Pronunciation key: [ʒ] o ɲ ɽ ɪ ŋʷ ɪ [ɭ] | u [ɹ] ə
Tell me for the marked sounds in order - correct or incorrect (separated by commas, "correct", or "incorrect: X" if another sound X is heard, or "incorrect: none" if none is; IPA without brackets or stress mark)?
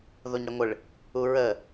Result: incorrect: ð, correct, correct